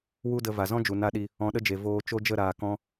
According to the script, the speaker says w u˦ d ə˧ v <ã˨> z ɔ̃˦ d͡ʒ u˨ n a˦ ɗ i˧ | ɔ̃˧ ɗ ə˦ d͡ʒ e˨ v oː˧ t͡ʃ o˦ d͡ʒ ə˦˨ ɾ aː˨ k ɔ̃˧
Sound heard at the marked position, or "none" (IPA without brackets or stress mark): a˨